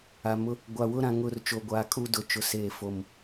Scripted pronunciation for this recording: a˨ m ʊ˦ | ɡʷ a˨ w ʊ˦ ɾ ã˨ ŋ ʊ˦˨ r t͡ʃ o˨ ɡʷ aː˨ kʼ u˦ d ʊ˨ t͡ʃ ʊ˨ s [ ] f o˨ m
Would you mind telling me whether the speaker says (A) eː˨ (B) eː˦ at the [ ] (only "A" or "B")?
A